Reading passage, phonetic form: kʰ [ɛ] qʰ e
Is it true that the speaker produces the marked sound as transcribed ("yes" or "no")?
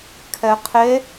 yes